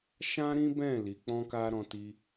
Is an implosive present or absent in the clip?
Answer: absent